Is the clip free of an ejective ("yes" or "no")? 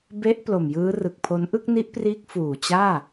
yes